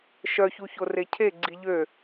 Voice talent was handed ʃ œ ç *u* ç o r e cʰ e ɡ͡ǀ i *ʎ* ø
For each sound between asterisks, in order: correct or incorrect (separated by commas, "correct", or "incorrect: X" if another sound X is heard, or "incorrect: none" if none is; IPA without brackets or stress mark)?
correct, correct